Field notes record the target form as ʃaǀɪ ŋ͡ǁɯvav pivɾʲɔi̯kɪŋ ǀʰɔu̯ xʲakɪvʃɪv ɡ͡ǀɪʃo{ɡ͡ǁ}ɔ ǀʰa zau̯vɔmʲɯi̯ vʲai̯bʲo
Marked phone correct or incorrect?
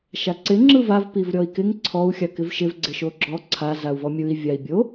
correct